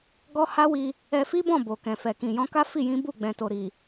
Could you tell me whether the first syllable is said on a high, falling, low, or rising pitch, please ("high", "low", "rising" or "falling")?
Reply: high